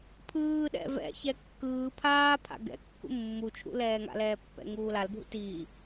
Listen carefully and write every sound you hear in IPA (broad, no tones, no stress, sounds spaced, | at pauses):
pʰ ɯː ɗ ɛ̰ v ɛ̰ ç ɛ kː ɯː pʰ aː pʰ a̰ ɡ ɛ̰ kː ṵ mː u t͡ʃʰ ṵ l ɛː ŋ a̰ l ɛː pː ɛ̰ ŋ uː l a l bʱ ṵ t iː